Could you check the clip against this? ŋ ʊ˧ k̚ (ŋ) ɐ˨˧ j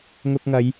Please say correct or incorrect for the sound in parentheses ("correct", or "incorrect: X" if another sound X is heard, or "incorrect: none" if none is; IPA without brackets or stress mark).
correct